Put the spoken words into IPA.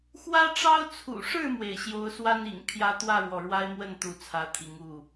x w ä˦ ʈ͡ʂ ɑ˦ ʊ̯ t͡sʰ ṵ˨˩ ʂ ɻ̩˥˨ m w e˩ ɪ̯ ɕ j o˨˦ ʊ̯ s w a˦ n ḭ˨˩ ŋ pʰ j ä˦ t̪ w ä˥˨ ɻ w ɔ˩ ɻ w a˦ ɪ̯ m w ə˥˨ n t̪ u˥˨ t͡sʰ ä˨˦ t̪ʰ i˨˦ ŋ u˥˨

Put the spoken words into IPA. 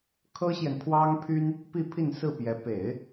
kʰ ɤ˥ ɕ j ɛ˨ n pʰ w ɑ˥ ŋ pʰ y˥ n | p i˥˧ pʰ i˥˧ n s ɹ̩˥˩ p j ɛ˧˥ p e˨˩˦ ɪ̯

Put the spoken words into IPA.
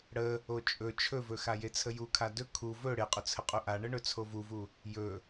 ɽ ə | o t͡ʃʼ ɵ t͡ʃʰ ɵ v ɵ x a j e t͡sʰ ə j u kʰ a d ɵ kʰ u v ɵ ɽ e qʼ ɵ t͡sʰ ə qʼ u ʔ a ɳ ə ɳ ɵ t͡sʰ o v u v u | j ɵ

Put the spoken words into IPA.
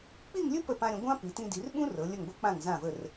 k͡p i˥˧ ŋ lʲ ɵ˥ p ə˧˩ p ã˧ ɾʲ ə̃˩˧ ɡʷ ã˥ p i˩˧ t ĩ˧ d i˩˧ r ɓ ũ˥ r ɤ˩˧ lʲ ə˧˩ ŋ ɡʷ ɤ˥ k͡p ã˧˩ ŋ z ã˧˩ v ə˧˩ r

